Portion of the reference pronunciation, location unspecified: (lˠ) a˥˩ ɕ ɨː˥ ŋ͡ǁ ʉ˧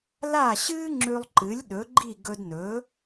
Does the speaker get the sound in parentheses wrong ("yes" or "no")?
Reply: yes